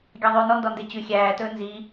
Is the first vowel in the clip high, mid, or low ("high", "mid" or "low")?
low